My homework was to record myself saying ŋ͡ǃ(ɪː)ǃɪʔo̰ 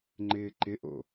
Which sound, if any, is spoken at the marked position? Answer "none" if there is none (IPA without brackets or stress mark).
ɪː